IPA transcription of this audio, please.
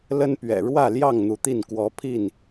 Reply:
l ə˦ n p ɥ ɛ̰˨˩ ɻ w ä˥˨ l j ɑ˥˨ ŋ n̪ u˨˦ t̪ i˥˨ n k w ɔ˨˦ pʰ i˥˨ n

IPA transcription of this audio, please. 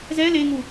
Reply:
z ɛ l e ŋ u

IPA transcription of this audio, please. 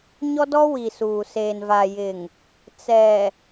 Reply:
ɲ ɔ˦ d ɔ˦ w i˨ s uː˨ s eː˨ n v a˨ j ɪ˨ ŋ | t͡s ɛ˨

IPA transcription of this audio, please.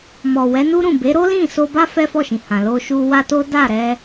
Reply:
m ɔ˨ w ɛ˨˦ n u˦ ɾ ũ˦˨ b e˨˦ ɾ o˦ l ĩ˦˨ s o˧ b a˦ f ɛ˦ f ɔ˦˨ ʃ ĩ˨ h ã˨ l o˧ ʃ u˧ w a˦ t o˦ d a˦˨ ɾ ɛ˧

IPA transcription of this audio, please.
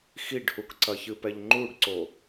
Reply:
x i ɖ h u k ǀ ɐ ç ɨ p ɛ ʎ ŋ͡ǃ u ɖ ǀ o

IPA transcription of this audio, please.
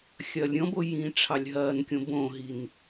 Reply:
xʲ ɐː lʲ ɾʲ ɔ̃ b o j ĩː ʈ͡ʂʰ ɑ lʲ ɦ ɐː n kʲ õ b õ ɦ i n

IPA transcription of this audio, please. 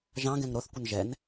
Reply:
ʒ ɑ̃ ɡ ɛ̃ ŋ ɾ o θ kʷ ə n ʒ ɛ n

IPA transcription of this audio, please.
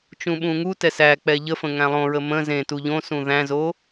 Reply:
t͡ʃ ũ ɓ ũ ŋ u t ɛ s æ k͡p ɛ ʎ ə f ə̃ ŋ æ̃ lˠ õ ɹ ə m ə̃ z ẽ t u ʎ õ s ũ ð æ̃ z o

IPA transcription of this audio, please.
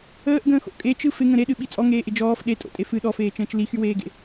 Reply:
əː ʔ ɡ ə̃ː x o̰ kʼ e t͡ʃ ɯ f ɪ ŋ ə̃ ɾ e ɗ ɨ ɓ i t͡sʼ ɔ ŋ eː ʔ ɪ d͡ʒ ɔː f ɗ e tʼ o̰ tʼ e f ɨ ɗ ɔ f eː t͡ʃ ə̃ː t͡ʃ l i x y w eː ɡ ḛ

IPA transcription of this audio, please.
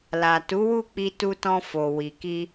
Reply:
l a˨ t u˨˦ w u˦˨ k͡p i˧ t u˧ t ɔ̃˧ f o˨ w i˨ k i˧

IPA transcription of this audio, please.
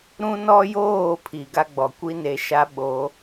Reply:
ɾ ũ˦ n ɔ˦ j oː˦˨ pʰ i˨ ɡ a˦ ɡ͡b ɔ˨ kʷ i˦ n e˨˦ ʃ a˦ ɓ o˨˦

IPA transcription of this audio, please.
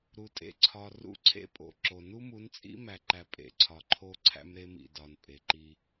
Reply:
ɾ u˨ tʼ ḛ˦ ǀʰ ɒ˨ r ṵ˦ ǀʰ ḛ˦ pʼ o̰˨ ǁ o˨ n u˦ m u˨˦ n t͡sʼ ḭ˦ m æ˨ ǃ æ˨ pʼ ḛ˨ ǀʰ ɒ˨ ǃʰ o˦ ǀʰ æ̰˦ m ɾ e˦ m ḭ˨ d ɒ˨ n pʼ e˨ ǃ i˦

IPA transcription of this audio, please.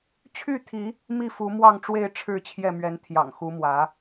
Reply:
t͡ɕʰ y˥˨ t̪ʰ i˨˦ | m i˥˨ f u˨˦ m w ɑ˥˨ ŋ ʈ͡ʂ w e˥˨ ɪ̯ ʈ͡ʂʰ ɻ̩˥˨ t͡ɕʰ j ɛ˥˨ m ɥ ɛ˨˦ n t̪ʰ j ɑ̰˨˩ ŋ x u˨˦ m w ä˨˦

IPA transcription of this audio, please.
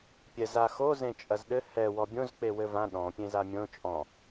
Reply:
pʲ ɛ z a x o z ẽ t͡ʃʼ ɐ z ɗ ɘ h ɛ w ɔ bʲ õ z k͡p e w ɘ v ã ɗ ɔ̃ pʲ ẽ z a mʲ õ t͡ʃʼ ɔ̃

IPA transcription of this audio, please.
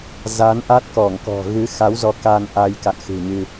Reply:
z a˨˦ n ʔ a˦˥ t̚ k ɔ˧˩ ŋ k ɔ̤˨˩ ɣ ɨ˨˦ x a˨˦ w z ɔ˨˦ k a˧ n ʔ a˧ j k a̰˧˨ n x ɨ̤˨˩ ɲ ɨ˧

